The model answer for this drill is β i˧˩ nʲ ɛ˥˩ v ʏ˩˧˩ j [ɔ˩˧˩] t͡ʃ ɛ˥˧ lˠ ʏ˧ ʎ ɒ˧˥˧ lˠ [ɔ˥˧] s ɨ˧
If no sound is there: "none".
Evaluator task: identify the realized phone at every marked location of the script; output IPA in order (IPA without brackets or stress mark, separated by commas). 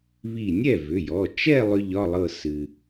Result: ɔ˩˧˩, ɤ˥˧